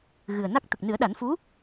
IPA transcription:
ɣ ɨ˨˩ ə̯ n a˦˥ k̚ t̪ ə˨˩ k̚ n ɨ˨˩˦ ə̯ ɗ a˨˩˦ n f u˧˥

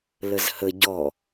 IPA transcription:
l ə z h ə ɟ ɔ

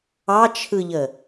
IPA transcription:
ɑ t͡ʃʰ ɯ ʎ ə

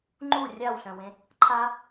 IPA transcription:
ŋ͡ǃ u rʲ a w ɬ œ̃ w ẽ | ǃʰ a

